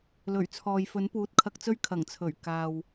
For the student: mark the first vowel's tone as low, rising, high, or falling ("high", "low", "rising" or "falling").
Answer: low